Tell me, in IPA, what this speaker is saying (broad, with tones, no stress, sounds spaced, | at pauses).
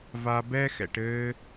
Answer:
v a˧ b ɛ˦ x ɛ̰˧ ʈ ɘː˧